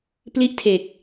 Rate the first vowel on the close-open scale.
close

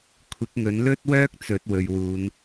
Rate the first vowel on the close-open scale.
close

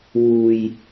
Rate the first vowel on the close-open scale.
close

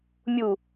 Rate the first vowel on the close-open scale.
close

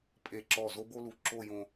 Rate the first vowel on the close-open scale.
mid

